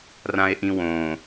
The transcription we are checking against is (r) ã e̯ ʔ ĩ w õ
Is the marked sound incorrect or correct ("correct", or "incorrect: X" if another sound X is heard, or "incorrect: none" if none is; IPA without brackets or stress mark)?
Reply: correct